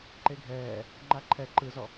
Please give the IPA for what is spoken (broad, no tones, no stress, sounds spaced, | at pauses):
ǃ e ɡʱ ɛː | ŋ͡ǃ a ǃʰ ɛ ǃ ɯ z ɔ